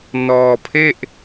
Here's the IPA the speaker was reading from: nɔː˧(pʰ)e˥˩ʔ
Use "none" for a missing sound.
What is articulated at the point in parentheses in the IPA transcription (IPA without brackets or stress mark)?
pʰ